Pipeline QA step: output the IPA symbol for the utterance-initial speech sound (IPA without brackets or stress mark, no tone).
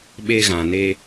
ɓ